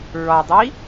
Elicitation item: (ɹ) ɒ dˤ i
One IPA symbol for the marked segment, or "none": ɹ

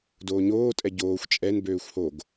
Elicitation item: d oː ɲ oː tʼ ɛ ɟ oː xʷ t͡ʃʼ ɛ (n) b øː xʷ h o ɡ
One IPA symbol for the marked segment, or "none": n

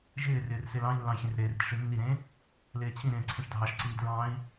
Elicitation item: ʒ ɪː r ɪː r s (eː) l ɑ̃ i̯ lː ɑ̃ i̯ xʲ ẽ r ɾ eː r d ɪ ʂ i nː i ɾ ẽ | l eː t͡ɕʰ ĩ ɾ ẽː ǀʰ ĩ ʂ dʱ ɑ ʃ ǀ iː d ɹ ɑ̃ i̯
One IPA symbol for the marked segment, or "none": e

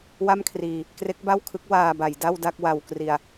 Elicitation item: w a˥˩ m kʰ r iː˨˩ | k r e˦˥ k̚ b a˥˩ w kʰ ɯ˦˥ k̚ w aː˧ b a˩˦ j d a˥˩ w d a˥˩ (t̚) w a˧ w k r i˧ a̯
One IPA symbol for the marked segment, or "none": k̚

